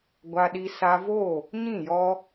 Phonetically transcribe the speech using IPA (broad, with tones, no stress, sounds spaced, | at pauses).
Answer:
ɡʷ a˧ ɗ i˧ s a˧ v o˦˨ | ɲ ĩ˦˨ j ɔ˧